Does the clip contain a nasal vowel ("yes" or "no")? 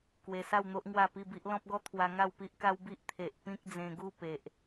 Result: yes